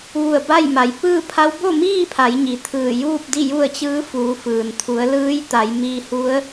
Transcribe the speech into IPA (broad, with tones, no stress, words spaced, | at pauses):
ʋu˧˩ə̯ ba˥˨j ma˩jpɯː˥˨pʰa˧˥w bo˥˨miː˥˨pʰa˩˧jɲi˩ t̪ʰɯː˧˩juː˥˨p̚ di˥˨ju˥˨ə̯t͡ɕɯː˧˥ fuː˩˧fɯː˩nt̪ʰu˩˧ə̯ lɯː˧˥jt̪a˩˧jmiː˧ hu˧˥ə̯